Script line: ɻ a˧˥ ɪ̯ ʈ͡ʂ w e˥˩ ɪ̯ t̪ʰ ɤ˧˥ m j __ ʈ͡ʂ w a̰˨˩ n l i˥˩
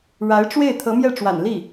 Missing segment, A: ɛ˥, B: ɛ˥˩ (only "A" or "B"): B